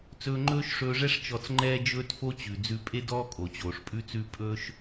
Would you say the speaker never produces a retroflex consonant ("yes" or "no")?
no